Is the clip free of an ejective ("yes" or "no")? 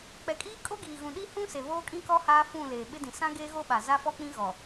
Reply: no